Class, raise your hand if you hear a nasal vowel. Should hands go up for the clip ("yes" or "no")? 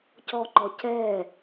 no